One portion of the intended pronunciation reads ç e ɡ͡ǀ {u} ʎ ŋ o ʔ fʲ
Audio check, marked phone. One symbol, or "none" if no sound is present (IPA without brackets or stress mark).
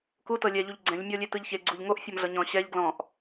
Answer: u